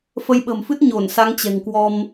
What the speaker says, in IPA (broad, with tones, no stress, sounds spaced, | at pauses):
f ə˨˦ j ɓ ə̤˨˩ m f ɨ˦˥ t̚ ɲ o˧˩ n s a˨˦ ŋ t͡ɕ ɛ̤˨˩ ŋ k w ɔ˧ m